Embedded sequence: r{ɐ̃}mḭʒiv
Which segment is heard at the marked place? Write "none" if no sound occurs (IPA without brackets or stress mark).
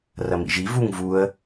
ɐ